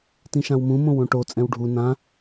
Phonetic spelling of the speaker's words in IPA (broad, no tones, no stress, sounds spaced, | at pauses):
t ĩ ʃ ã w m ũ m õ w õ ʈ o t͡sʼ ɛ̃ w ɖʱ u n ã